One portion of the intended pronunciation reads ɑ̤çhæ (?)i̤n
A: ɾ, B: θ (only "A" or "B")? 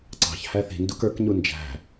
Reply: B